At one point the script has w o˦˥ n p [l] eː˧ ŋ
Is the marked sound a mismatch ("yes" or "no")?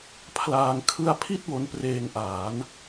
yes